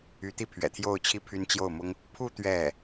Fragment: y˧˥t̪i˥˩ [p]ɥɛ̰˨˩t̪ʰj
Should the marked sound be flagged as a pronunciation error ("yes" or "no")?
yes